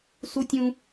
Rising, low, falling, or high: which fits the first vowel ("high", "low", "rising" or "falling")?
high